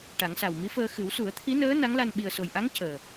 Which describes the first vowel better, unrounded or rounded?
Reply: unrounded